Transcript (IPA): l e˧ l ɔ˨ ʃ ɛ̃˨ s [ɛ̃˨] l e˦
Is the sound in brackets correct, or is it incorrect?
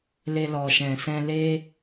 incorrect